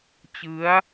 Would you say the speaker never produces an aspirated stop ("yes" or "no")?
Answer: yes